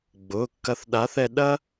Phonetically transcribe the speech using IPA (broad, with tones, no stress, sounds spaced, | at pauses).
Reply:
ɡ͡b ʊː˩˧˩ kː ɐ˧ θ ɗ a˨˥ θ ɛ˧ ɗ ɐ˥